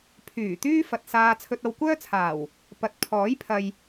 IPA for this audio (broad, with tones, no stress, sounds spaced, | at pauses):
pʰ yː˨˩ t̪ yː˥ f ɐ˨ t̚ s aː˧ t͡sʰ ɵ˧ t̚ ɐ˧ w kʷ œː˥ t͡sʰ aː˨˩ w | p ɐ˨ t̚ pʰ ɔː˨˥ j pʰ ɐ˨ j